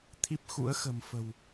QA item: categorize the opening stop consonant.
aspirated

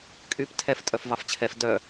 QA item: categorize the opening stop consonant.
ejective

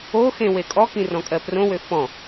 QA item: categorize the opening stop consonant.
ejective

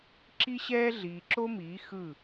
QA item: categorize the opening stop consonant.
click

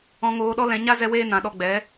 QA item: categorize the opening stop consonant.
implosive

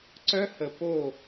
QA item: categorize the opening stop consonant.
click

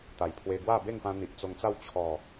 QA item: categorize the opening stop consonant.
plain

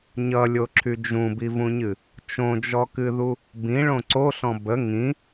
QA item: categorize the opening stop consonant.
click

